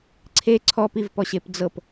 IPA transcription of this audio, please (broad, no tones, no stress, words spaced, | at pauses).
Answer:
ǀʰe ǀʰɔpivpɔɕep d͡zɤp